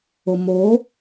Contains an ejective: no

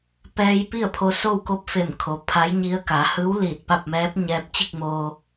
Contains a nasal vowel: no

